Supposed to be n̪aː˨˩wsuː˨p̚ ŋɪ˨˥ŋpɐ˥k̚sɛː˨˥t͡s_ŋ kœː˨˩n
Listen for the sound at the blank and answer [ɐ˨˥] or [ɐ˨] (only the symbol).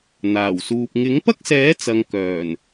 ɐ˨